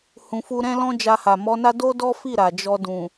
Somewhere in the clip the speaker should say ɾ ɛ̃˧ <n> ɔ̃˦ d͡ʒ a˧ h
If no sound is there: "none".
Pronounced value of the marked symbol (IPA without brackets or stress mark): l